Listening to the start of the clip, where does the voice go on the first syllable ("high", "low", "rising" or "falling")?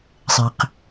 low